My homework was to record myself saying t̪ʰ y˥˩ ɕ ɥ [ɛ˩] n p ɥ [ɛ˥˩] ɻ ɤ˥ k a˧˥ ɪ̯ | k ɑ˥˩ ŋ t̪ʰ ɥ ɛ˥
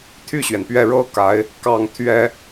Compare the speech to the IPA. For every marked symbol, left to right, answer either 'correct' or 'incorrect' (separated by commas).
correct, correct